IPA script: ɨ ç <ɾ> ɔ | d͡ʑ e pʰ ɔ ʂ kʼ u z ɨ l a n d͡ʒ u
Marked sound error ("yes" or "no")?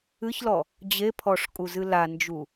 yes